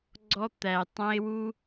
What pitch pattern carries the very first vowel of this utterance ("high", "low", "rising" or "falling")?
high